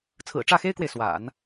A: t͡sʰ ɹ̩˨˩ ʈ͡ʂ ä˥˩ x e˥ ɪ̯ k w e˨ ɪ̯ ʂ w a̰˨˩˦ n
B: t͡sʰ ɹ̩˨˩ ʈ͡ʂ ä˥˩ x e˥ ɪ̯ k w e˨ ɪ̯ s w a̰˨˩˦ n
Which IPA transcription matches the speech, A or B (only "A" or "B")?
B